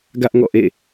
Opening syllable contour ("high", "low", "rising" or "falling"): high